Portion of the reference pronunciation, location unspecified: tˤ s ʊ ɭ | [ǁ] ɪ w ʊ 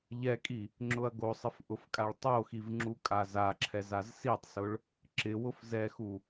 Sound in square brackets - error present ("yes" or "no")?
no